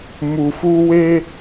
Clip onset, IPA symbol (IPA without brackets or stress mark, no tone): m